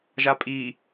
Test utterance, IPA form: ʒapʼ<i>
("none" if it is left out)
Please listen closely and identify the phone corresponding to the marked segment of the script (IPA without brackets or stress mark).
i